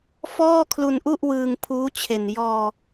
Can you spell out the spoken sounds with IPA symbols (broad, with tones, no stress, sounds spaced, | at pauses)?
f ɔː˥˩ kʰ l u˧ n ʔ u˥˩ ʔ w ɯː˧ ŋ pʰ uː˦˥ t͡ɕʰ e˨˩ n j ɔː˧